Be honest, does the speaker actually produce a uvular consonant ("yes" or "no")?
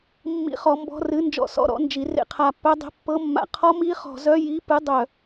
yes